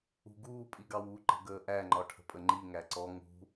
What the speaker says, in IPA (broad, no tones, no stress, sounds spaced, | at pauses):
ṳ ɡ uː pʼ i ɡ ɑ w u ǃ ə̤ ɡ əː ʔ æ ŋ͡ǃ ɒ ʈʰ ə̤ pʼ ə ŋ͡ǃ i ŋ æ ǀ ɔ ŋ ṳ